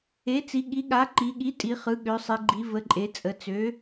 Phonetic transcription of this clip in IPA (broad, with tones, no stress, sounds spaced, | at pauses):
e˩˥ t͡s i˩˧ ɠ i˩˥ ɠ a˩˥ ǃ i˩˧ ɠ i˩˥ tʼ i˩˧ χ ɯ˩˧ ɠ ø˩˧ sˤ i˩˧ ɡ͡ǃ i˩˧ v ə˩˥ ǃʼ e˩˧ t͡sʼ ə˩˧ t͡s ø˩˥